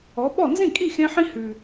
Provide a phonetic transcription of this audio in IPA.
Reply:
ɔ˩˥ɓɔ˥˩ nzĩ˥˩kʼi˥˩xẽ˧ħĩ˧ hʉ˩

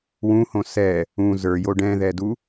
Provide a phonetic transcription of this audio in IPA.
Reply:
wũhõ sɛ | ũ zə˞jo ɖɛ̃ðɛdu

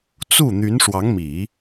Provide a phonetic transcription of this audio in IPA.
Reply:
t͡su˥˩ n̪y˧˥nʂwɑ˧˥ŋmi˨˩˦

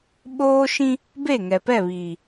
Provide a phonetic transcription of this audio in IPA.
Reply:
ɓoː˦ʃĩ˦ | be˦˨ŋɛ˨pɛ˦˨βiː˨

